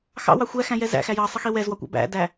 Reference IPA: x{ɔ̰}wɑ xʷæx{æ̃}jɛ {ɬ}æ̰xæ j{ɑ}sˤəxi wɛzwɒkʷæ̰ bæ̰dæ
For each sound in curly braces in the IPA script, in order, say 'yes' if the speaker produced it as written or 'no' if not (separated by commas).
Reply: no, yes, no, yes